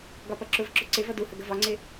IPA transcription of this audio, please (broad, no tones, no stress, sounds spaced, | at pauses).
ɡ ɒ p ʌ ǁ ʊ v ǁ ʊ ǀ ɪ v ʌ d u h ə ɡ ə v ɒ ŋ͡ǀ ɪ